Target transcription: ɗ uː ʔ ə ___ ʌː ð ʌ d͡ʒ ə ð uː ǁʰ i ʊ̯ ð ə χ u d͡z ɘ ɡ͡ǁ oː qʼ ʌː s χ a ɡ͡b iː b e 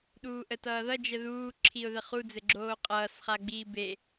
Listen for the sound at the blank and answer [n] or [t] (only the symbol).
t